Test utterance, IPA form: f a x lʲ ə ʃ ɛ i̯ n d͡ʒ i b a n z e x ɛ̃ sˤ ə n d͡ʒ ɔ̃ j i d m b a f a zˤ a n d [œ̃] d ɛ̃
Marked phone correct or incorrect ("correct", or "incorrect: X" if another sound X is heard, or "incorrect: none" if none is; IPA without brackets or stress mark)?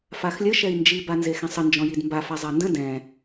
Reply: incorrect: ə̃